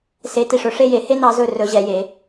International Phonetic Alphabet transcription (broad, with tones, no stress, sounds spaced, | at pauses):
s e˧˥ t i˧˩ ʂ ɵ˩˥ ʂ e˥˧ j e˩˥ h e˥ n ɑ˧˥ z ɵ˥˧ r ɵ˧˥ ʑ ɛ˩˥ j e˩˥